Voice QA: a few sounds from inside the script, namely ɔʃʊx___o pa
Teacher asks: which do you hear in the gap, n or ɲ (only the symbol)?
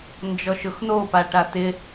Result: n